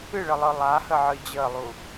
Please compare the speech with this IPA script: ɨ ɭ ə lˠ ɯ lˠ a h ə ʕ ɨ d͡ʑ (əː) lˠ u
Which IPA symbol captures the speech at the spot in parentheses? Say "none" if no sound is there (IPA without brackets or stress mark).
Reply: əː